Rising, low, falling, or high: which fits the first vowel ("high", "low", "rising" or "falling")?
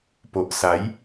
low